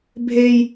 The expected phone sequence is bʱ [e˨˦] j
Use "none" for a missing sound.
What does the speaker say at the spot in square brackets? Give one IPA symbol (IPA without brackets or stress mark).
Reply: e˦